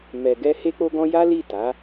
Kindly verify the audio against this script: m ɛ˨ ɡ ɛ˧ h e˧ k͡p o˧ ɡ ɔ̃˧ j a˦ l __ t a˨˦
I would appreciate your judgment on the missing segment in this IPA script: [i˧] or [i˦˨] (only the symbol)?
i˦˨